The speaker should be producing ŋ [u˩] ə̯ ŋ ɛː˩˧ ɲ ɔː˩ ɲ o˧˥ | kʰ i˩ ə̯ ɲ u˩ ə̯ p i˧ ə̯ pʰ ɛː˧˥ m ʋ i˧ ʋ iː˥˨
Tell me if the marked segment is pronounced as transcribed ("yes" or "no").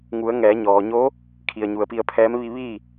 no